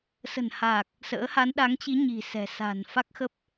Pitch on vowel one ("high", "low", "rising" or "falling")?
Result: low